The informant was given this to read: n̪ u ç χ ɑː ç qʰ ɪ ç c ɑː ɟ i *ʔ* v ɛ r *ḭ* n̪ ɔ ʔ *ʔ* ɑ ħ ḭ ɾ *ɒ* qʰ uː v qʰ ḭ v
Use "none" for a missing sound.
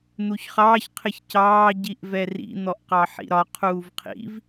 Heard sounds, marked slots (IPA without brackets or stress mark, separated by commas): ʔ, ḭ, q, ɒ